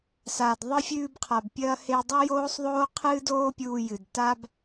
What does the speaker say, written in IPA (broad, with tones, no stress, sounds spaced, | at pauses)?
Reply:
s a˩ d ðˤ ɨ˧ fʲ ʉː˧ b qʰ a˩ b pʲ ɐː˧ h e˧ dˤ o˥ j oː˥ sˤ ðˤ oː˥ qʰ ɨː˥ d oː˥ pʲ uː˧ j ɨ˩ d t a˥ b